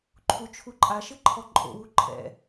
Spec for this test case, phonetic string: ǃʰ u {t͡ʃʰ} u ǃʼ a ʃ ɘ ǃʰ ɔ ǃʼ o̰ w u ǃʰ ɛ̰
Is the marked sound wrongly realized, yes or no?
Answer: no